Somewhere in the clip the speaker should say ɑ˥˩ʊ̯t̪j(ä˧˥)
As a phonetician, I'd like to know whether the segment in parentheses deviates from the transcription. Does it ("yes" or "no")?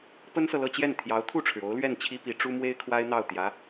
no